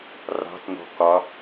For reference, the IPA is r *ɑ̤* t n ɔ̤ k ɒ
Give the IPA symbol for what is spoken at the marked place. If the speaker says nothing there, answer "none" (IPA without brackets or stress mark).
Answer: ɑ̤